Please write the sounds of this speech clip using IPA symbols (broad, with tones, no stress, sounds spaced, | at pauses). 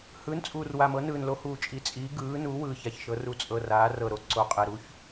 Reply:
h ɯː˩˥ n t͡sʼ uː˨˩ r w a˨˩ m ɤ˩˥ n ɯː˨˩ n l o˩˥ h uː˨˩ t͡ʃʼ i˩˥ t͡sʼ iː˩˥ ɡ ɯː˩˥ n u˩˥ w ɯː˨˩ ç a˨˩ ç ʃ ɤ˩˥ r u˩˥ t͡sʼ ɤ˨˩ r aː˩˥ r ɤ˨˩ ɾ o˨˩ ǀ o˨˩ qʼ e˨˩ ɾ u˩˥ ç